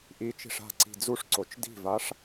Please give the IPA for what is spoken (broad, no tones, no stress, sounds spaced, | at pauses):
ʔ i t͡ʃ i̤ ʂ a̤ ǀ i̤ d͡z u ʂ ǀ o t͡ʃ d i̤ v a ʂ